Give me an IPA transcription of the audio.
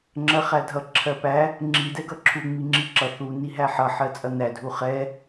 ŋ͡ǁ ɜ χ æ dʱ ʌ ǁʰ ɜ p æ | ŋ͡ǁ i d ɛ ɡ ʌ ǁʰ u ŋ͡m i ŋ͡ǁ i ǁ ʌ θ u n i ɦ æ ħ ʌ ħ ɜ t͡sʼ ʌ n æ dʱ u χ ɛ

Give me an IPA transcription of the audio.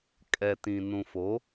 kʼ ɛ˨ t ĩ˨ n ũ˨ f o˨˦

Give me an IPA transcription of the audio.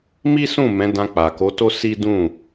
m i˦ s ũ˦˨ m ɛ̃˨˦ d ã˧ k͡p a˨ k o˨˦ t o˦ s i˦ d ũ˦˨

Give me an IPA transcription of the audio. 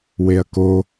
w e ɐ̯ k o

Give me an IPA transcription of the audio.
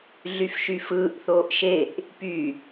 ɮ y f ʃ y f ɯː ʔ θ oː ʔ ʃ e ʔ | p y

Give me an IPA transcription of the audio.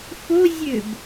f o zʲ ø b

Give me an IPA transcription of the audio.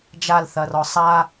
d͡ʒ a l θ ɐ r ɔ sˤ a

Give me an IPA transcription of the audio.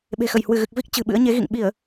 ɓ e̤˨˩ x ə˧˩ j h w ɨ˧˩ ɣ ɨ˨˩ k̚ v i˦˥ k̚ t͡ɕ ɨ̤˨˩ ɓ ɨ̰˧˥ ə̯ ɲ e˨˦ ɣ ḭ˧˨ ŋ ɓ i˧˩˨ ə̯

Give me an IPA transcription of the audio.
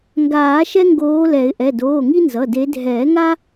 ŋ ɡ aː˨˩˦ ʃ ɛ˦ ŋ ɡ oː˨˦ l ɛ˨˩˦ ɪ̯ ʔ ɛ˩˧˩ d oː˩˧˩ ŋ i˦ n z ʌ˩˧˩ d e˨˦ dʱ ɛː˨˩˦ ŋ a˦

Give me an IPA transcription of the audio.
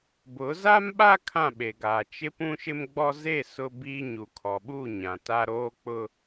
b ʊ˨˦ z a˦ m ɓ a˦ kʰ ã˦˨ ɓ e˨ ɡ aː˨ t͡ʃ ɪ˦ p ũ˦ ʃ ɪ˦ m ɡ͡b ɔ˦ z e˦˨ s ʊ˦ b i˦ ɲ u˨ kʰ ɔ˨ ɓ u˦˨ ɲ ã˨ t a˦ ɾ oː˦ k͡p ʊ˦

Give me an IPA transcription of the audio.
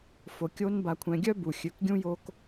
f o˨ kʲ o˦ n b a˨ kʷʰ ɛ̃˨ ɡʲ œ˦ b u˨ xʲ ø˨ k ɡʲ ũ˦ j o˦ k

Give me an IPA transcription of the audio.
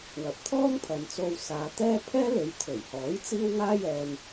w ɐ˨˥ p̚ t̪ʰ ɔː˥ ŋ pʰ ɐ˨˧ n t͡s o˧ w s aː˨˧ t̪ ɛː˥ pʰ ɛː˥ l e˨˧ j t̪ʰ ɵ˨˩ ɥ h ɔː˨˥ j t͡s iː˥ w ŋ aː˥ j ɛː˧ n

